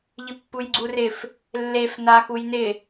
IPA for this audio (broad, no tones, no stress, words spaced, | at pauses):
ʎɪpːujɡ͡ǀurɪf | lːef naxujnɪ